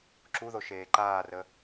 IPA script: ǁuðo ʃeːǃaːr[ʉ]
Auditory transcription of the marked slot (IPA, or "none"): ə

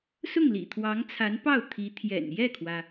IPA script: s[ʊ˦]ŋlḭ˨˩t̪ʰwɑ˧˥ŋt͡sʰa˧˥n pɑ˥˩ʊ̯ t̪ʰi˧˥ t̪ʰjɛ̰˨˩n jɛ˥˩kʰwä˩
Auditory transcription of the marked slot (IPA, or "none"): ʊ˥˩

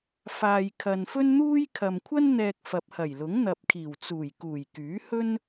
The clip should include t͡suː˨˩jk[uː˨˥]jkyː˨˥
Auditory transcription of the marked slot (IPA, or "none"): uː˨˩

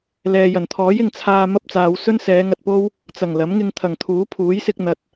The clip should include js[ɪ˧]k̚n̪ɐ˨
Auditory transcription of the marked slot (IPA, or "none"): ɪ˧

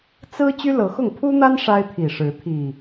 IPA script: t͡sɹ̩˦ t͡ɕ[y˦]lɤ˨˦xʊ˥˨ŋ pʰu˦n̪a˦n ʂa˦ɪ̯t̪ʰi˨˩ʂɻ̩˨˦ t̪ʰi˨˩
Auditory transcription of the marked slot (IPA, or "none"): y˦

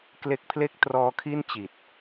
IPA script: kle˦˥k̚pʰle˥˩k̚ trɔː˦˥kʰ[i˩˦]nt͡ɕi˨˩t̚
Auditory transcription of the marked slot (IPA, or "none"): i˥˩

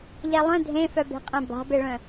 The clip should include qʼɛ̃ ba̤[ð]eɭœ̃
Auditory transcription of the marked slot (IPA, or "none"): b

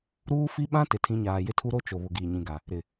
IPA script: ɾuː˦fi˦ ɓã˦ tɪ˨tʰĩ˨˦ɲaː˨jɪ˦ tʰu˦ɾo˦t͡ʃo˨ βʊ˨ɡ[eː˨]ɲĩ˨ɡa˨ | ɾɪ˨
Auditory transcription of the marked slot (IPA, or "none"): iː˨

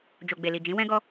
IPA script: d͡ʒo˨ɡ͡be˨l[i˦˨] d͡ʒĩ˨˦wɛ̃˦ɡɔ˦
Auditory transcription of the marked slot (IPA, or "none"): i˨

